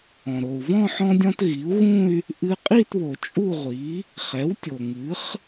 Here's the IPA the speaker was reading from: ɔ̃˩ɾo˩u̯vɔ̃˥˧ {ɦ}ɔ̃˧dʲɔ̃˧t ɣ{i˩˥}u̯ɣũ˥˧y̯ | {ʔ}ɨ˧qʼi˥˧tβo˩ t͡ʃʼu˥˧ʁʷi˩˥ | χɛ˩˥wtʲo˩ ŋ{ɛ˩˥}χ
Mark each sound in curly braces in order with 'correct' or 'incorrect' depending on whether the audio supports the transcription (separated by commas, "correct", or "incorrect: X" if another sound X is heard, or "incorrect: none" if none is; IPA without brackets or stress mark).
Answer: incorrect: ħ, correct, correct, incorrect: ɨ˩˥